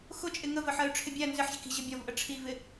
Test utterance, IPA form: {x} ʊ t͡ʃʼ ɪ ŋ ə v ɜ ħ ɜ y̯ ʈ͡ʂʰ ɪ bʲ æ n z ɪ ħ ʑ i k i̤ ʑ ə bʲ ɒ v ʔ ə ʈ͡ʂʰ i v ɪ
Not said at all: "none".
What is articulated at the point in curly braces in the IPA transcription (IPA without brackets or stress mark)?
x